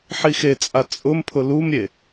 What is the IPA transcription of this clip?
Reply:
ħixet͡sʼa t͡sʼʊmpʰʊ lumɾʲe

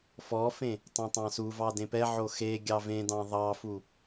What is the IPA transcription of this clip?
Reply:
fɔfẽ | tˤẽtˤɑ̃suvɑ dẽpɛʕo xe ɡʲɑvẽdɑ̃ ðˤɑfu

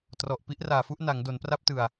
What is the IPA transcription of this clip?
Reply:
trɔ˨˩ʔ pi˦˥ʔraː˨˩fu˥˩ʔ na˩˦ŋ do˩˦npra˦˥p̚tɯ˨˩a̯

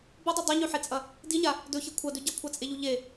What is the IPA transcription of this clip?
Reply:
bodˤu dˤeɲʉħet͡sʼɐ | diɲa | dɵçi kʷʰɐdʉ ɟɐkʷʰat͡sʼeʎu ʎe

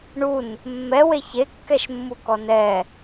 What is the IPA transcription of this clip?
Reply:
ɳun | mːɛwe çekːɛʃmːu kɔnɛ

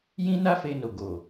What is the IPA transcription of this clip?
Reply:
jĩ˦ na˦fe˧no˨ɡo˨

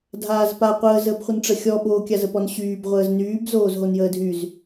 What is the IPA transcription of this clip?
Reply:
dʱaːzpa qʷəːzəːbχʷən ʈ͡ʂəxʲɔɓoː kʲazəpɔnɕyːb ʁʷəːznyːb zoːzɦonjəːdʱyz

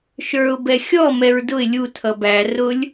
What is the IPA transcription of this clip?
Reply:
ʃə˞ʊ̯ bɛxʲɔ mɛɹdʊɪ̯ lʲu tʰʌbæ rʊlʲ

